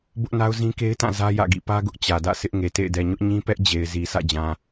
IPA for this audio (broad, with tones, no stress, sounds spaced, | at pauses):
b ʊ˦ ʔ n a˦ ʊ̯ z ĩ˦ k e˦ ɪ̯ t ã˦˨ z ä˦ j ä̰˦˨ ɡ ḭ˦˨ p ä˦ ɡ ʊ˦ ʔ t͡ɕ ä˨ d ä̰˦˨ sʰ ɪ˦ ʔ ŋ e˨ t ḛ˦˨ ɪ̯ d ɛ˨ ɲ ʊ˦ ʔ ɲ ĩ˦ p ɛ˦ ʔ d͡ʑ e˨ ɪ̯ z i˨ sʰ ä̰˦˨ d͡ʑ ã˨